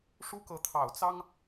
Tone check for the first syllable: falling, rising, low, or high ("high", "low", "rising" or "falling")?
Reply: high